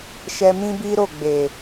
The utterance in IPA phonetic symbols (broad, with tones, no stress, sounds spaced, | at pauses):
ʃ ɛ˧ m ĩ˦ b i˦ ɾ o˦˨ ɡ͡b e˨